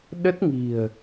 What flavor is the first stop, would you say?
implosive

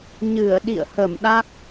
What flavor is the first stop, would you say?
implosive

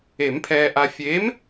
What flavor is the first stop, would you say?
aspirated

